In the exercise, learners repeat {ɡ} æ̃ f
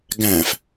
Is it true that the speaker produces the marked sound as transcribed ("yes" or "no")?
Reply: yes